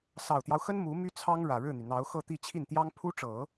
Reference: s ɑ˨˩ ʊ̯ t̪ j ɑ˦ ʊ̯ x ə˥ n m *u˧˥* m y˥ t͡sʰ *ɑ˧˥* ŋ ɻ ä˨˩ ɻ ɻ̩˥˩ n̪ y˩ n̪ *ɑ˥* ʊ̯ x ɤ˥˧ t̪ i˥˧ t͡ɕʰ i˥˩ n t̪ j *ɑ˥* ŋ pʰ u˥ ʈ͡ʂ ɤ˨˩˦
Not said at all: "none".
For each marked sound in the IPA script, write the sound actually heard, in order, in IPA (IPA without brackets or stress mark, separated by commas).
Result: u˧˥, ɑ˥, ɑ˧˥, ɑ˥